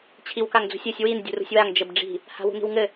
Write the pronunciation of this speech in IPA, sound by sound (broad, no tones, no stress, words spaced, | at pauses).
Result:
t͡ɕʰiwkaŋd͡zṳsʲɘsʲ win dʲṳrṳsʲwaŋ d͡ʒɘbɖ͡ʐi̤ | ha̤wṳni̤wŋɘ